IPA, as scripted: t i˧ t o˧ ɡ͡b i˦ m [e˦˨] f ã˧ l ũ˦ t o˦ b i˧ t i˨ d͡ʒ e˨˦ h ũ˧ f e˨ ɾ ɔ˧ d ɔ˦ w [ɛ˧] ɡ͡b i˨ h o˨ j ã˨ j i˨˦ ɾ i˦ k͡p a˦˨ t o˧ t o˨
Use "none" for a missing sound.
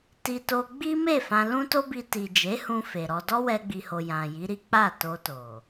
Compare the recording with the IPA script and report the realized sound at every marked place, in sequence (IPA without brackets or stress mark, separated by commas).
e˦˨, ɛ˧